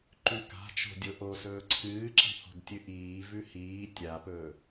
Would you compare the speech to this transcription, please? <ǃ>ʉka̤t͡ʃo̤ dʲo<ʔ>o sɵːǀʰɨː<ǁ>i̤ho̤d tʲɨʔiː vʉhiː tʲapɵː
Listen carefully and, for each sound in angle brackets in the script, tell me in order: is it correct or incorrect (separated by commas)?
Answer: correct, correct, correct